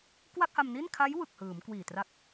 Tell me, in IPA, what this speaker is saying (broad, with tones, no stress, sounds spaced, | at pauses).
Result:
k w a˥˩ k̚ h a˧ m n i˥˩ n kʰ a˦˥ j w ɯ˨˩ k̚ h ɯː˩˦ m k w iː˨˩ t r a˦˥ k̚